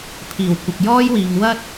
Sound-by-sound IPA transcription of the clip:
pʰ iː˨˩ w kʷ ɪ˨ k̚ j ɔː˥ j w iː˨ ŋ w ɐ˥ t̚

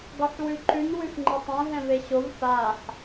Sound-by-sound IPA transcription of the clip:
ɡ ɒ ħ w ʉ ǃ ʉ n w ʉ f ŋ͡ǃ ɘ tˤ ɛ̃ ɦ ɛ̃ v e ɕ o v f a ħ

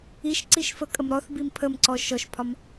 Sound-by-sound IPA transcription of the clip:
i ʃ ǀ i ʃ f ə kʼ ə m ɾ ɔ θ b i m pʰ ə m ǀ ɔ ʃ ɔ ʃ pʰ ɒ m

